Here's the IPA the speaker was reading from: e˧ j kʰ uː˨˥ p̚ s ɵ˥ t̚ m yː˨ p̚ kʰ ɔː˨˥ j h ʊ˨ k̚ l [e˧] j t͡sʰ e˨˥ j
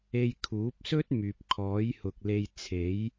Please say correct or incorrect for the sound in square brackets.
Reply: correct